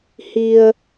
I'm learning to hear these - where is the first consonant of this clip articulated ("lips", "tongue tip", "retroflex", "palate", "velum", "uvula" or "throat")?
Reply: throat